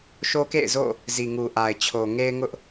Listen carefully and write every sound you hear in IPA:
ʃ o˦ k ḛ˦˨ ɪ̯ z o̰˦˨ | z i˨ ŋ u˨ ʔ a˨ ɪ̯ t͡ɕʰ o˨ ŋ e˦ ɪ̯ ŋ ʊ˦ ʔ

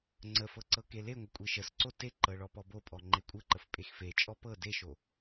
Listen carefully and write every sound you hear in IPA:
ŋ͡ǀ ə f ɤ ǀ ɤ k e l e ŋʷ ə kʷʼ e ʃ ə s ǀ o t e ǃ ɤ ɭ ɔ p ɔ b o pʼ ɔ ŋ͡ǃ e kʷʼ ə ǃ ə f pʼ e x f e t͡ʃʼ ɔ p ɤ d e ʃ o

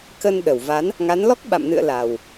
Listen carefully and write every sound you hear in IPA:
k ə˧ n ɗ ə˧˩ w v a˨˦ n | ŋ a˨˦ n l ɔ˦˥ k̚ ɓ a̰˧˨ m n ɨ̰˧˨ ə̯ l a˨˩ w

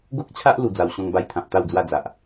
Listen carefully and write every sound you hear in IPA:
ɡ o˦ k̚ t͡ɕʰ a˦ ʔ l u˧ d͡z a˧ w ɕ ɔ̃˦ ŋ b a˦ j t̪ʰ ã˨ p̚ t̪ a˥˧ w d͡z w a˥˧ d͡z a˨ ʔ

